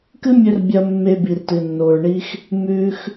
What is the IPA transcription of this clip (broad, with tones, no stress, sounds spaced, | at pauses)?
k ɨ˦ mʲ ɵ˧ r bʲ ɐ˧ mː e˧ b i˨ r t ɨ˨ nː o˨ ɹ ɳ i˦ x | m ʉ˦ x